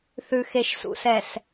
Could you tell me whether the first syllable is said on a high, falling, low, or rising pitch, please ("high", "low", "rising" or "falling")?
low